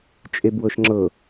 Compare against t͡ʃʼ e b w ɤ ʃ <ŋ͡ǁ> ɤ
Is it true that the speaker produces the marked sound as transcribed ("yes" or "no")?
yes